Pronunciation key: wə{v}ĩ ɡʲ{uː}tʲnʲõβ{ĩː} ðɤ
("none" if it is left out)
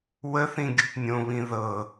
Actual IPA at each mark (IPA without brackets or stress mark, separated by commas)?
θ, u, ĩ